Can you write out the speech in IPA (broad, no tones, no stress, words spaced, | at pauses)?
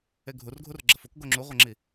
eɡʱurɡʱur ɡ͡ǁɐfuk ɡoŋ͡ǁuʁʷɐŋ͡ǁi